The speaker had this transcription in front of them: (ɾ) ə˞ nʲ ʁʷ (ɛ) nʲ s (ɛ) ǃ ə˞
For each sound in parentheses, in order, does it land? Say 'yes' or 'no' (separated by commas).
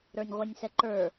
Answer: yes, yes, yes